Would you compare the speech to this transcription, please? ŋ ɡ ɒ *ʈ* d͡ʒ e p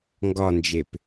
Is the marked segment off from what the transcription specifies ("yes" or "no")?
yes